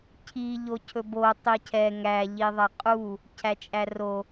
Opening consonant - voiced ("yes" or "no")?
no